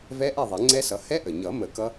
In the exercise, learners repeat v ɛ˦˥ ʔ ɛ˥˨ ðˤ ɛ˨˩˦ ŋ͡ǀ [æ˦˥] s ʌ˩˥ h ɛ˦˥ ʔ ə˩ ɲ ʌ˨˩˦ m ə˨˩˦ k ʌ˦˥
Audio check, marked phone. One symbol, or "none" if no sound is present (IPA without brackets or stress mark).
ɛ˦˥